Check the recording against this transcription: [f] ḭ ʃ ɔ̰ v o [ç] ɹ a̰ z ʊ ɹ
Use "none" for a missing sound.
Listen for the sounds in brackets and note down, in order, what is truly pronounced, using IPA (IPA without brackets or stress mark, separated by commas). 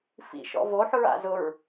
f, ħ